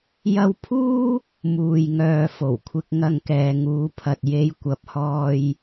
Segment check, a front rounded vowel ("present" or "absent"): present